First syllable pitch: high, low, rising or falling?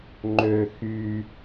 low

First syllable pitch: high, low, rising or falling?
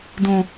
high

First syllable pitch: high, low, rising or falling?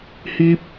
high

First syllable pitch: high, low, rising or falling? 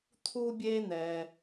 high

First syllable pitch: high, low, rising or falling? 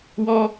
high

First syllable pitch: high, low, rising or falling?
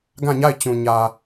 falling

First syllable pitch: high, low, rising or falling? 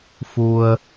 low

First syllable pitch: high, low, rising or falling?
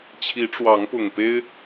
rising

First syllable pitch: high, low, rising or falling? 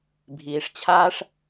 low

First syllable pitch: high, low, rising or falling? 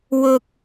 high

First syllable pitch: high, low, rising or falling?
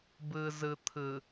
low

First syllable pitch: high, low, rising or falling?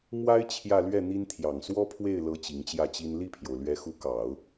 high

